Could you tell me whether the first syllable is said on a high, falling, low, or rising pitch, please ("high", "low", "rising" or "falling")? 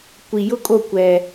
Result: low